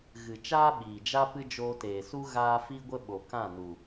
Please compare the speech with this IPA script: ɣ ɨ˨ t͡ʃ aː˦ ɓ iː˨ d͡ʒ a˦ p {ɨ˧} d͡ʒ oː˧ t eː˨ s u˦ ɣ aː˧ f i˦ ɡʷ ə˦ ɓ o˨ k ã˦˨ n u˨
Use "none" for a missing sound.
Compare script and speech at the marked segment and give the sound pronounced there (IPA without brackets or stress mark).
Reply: ɨ˧